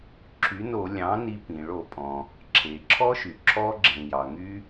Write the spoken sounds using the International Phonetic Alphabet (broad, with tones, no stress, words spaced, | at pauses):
ǁʰy˩˥no˧˩˧ lʲɑ̃˩˥ni˧pĩ˩ ɭo˧˩˧pʼɔ̃˩ | ǁʰe˩ǁʰɔ˦˥ʃy˩ ǁʰɔ˧ɡ͡ǁẽ˩ jɑ˩ŋy˦˥